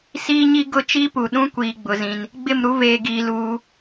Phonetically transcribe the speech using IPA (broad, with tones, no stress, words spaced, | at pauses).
siː˦ɲi˦ɡʊ˦˨ t͡ʃi˦pu˨ɗũ˦ kʷiː˨ɡ͡bʊ˨ zĩ˦n | ɡ͡bɪ˦˨mɾu˦veː˨ɡiː˨ luː˦